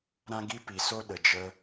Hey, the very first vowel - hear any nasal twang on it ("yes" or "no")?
yes